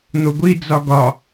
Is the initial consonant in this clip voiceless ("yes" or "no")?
no